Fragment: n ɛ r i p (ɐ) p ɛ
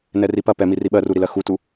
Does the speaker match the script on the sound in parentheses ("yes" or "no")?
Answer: yes